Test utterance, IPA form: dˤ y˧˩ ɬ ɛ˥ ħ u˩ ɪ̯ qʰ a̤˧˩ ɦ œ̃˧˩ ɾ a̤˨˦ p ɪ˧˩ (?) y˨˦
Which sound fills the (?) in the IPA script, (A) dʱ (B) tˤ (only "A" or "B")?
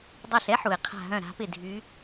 A